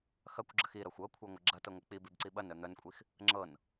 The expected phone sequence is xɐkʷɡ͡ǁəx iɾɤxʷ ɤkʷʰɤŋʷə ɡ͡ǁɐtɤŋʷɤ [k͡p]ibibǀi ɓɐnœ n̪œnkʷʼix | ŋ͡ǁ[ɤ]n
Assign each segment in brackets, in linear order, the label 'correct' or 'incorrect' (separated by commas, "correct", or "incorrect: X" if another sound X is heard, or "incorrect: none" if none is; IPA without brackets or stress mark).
correct, correct